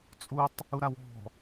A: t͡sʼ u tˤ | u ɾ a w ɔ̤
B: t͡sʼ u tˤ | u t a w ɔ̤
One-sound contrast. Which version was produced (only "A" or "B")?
A